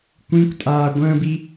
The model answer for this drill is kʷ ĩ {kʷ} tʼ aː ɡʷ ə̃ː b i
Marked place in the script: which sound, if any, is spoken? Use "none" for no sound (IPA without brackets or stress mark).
kʷ